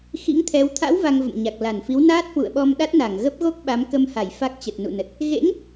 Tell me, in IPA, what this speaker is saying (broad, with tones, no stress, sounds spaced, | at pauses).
x ḭ˧˥ ŋ t̪ʰ ɛ˨˦ w t̪ʰ a̰˧˥ w v a˧ ŋ v ə̰˧˨ m ɲ a˨˩ k̚ l a˧˩ n f i˨˦ w n aː˦˥ t̚ h w ṵ˧˨ ə̯ ɓ ɔ˧ m ɗ a˦˥ t̚ n a˧˩ ŋ ɣ ə˦˥ p̚ ɣ o˦˥ k̚ ɓ a˨˦ m k ə˧ m h a˧˩ j f a˦˥ k̚ t͡ɕ ə˨˩ t̚ n ṵ˧˨ n ə˨˩ t̚ | ɣ ḛ˧˥ ŋ